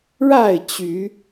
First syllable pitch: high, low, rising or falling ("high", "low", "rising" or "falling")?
falling